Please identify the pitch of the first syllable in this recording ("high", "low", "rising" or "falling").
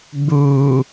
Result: low